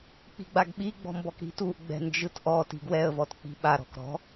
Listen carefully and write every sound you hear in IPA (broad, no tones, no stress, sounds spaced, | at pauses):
k͡p i̤ ɡ͡b a ɡ ɓ i ɡ͡b ɔ̤ m b ɔ k ɾ i̤ t u ʔ ɡ͡b ɛ̤ n d͡ʒ ɯ t ʔ ɔ t i̤ ɡ w ɛ ə̯ v ɔ t k͡p i̤ ɓ a ɾ ɔ̤ k ɾ ɔ̤